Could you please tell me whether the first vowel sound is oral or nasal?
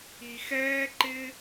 oral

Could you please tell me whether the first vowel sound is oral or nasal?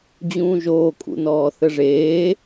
nasal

